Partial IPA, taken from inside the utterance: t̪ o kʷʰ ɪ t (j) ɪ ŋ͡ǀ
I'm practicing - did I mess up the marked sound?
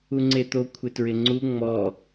yes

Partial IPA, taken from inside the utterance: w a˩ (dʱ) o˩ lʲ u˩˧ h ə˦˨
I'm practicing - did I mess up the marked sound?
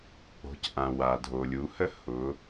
no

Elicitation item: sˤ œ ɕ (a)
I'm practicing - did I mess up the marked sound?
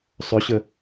yes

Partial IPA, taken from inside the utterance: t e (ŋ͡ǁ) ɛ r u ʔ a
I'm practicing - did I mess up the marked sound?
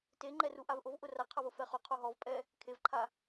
yes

